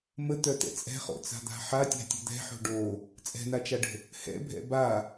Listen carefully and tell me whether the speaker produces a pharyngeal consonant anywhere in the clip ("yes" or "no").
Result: yes